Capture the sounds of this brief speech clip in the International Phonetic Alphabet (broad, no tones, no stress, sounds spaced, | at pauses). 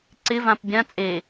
ǀ ɪ v ã p bʲ ã t͡sʼ e